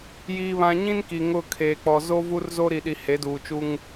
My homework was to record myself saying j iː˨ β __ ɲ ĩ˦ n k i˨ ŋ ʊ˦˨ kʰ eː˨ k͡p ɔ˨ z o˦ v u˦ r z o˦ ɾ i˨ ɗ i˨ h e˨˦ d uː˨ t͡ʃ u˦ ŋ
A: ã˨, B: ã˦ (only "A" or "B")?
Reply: A